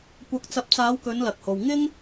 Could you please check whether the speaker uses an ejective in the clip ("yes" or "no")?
no